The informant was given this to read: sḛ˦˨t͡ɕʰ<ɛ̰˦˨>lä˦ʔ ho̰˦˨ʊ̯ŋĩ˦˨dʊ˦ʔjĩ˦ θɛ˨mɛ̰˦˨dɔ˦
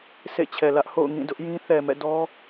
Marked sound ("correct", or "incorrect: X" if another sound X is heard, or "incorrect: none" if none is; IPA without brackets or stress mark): incorrect: ɛ˨